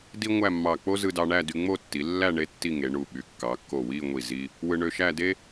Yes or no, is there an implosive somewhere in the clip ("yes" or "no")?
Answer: yes